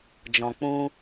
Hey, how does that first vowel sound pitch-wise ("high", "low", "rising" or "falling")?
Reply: low